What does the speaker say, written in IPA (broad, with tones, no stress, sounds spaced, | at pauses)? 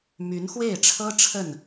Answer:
m y˧˥ n x w e˥˩ ɪ̯ ʈ͡ʂʰ ɤ˥ ʈ͡ʂʰ ə˥˩ n